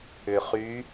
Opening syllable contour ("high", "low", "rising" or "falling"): low